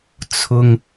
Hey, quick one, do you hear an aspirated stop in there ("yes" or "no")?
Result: yes